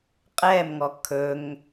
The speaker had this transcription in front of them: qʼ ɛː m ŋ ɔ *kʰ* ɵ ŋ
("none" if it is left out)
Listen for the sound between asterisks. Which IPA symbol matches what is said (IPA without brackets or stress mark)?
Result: kʰ